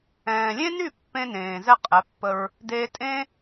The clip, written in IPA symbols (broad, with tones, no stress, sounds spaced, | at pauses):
ɛ̃ː˨ lʲ ẽ˦ n y˦˨ pː ẽ˧ n ẽː˨ z ɛ˦ qʼ ɛ˨˦ pː ə˧ ɹ | d eː˧ tʼ ẽː˦